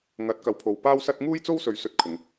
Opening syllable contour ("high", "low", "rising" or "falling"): rising